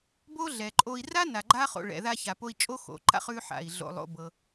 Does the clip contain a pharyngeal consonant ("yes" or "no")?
yes